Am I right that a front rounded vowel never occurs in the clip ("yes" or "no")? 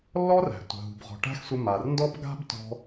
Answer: yes